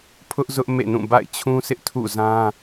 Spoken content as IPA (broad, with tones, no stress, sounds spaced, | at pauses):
pʰ ʊ˦ ʔ z ʊ˦ ʔ m ḛ˦˨ n ũ˦˨ b a̰˦˨ ɪ̯ t͡ɕʰ ũ˦ s ɪ˦ ʔ tʰ ṵ˦˨ z ã˦